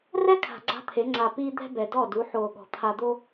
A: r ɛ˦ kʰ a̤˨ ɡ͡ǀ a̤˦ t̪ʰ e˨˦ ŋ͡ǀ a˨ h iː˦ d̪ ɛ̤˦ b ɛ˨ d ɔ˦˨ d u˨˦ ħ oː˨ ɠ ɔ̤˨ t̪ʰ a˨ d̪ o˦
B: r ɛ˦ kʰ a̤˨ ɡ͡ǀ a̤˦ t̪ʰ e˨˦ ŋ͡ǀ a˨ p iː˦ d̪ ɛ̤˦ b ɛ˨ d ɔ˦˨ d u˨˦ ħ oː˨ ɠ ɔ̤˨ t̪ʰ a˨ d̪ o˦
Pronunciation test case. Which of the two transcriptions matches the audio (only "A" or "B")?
B